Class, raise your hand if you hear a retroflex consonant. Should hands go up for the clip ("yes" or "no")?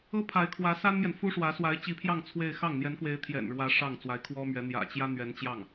yes